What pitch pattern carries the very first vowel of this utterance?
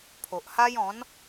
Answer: low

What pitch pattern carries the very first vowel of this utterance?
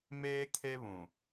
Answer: high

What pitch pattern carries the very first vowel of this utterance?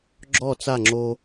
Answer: falling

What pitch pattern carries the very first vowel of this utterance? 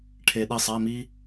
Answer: low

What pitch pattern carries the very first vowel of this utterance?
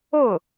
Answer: falling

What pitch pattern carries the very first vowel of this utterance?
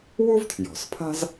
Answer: high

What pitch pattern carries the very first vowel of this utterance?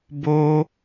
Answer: high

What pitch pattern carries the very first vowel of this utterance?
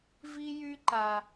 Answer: high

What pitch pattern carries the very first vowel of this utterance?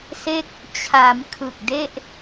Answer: falling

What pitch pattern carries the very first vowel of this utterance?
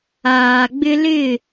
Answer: low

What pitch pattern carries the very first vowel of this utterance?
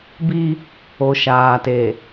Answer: high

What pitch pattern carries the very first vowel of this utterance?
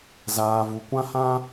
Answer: low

